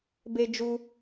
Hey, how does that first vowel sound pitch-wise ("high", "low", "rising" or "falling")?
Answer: high